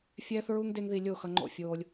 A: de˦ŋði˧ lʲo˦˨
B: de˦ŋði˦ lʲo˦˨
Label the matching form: A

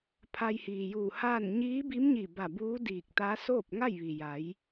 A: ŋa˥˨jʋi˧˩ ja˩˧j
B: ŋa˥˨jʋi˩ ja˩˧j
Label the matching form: B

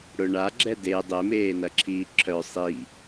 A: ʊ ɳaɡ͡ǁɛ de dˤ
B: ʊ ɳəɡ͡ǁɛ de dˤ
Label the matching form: A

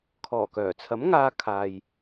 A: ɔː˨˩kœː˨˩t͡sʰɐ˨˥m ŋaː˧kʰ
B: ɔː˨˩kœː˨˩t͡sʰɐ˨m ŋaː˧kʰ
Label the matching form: A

